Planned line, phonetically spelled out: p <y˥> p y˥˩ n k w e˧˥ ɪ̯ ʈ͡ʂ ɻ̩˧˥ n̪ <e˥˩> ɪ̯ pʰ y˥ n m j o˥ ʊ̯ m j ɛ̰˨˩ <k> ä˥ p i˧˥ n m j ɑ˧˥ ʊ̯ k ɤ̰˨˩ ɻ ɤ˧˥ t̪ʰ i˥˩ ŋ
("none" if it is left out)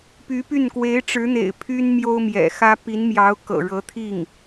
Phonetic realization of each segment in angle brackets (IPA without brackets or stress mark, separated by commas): y˧˥, ḛ˨˩, x